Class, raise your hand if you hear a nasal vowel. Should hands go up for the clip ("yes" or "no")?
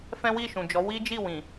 yes